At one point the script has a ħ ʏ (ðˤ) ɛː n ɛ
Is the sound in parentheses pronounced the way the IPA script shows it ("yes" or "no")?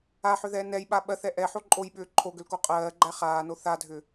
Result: no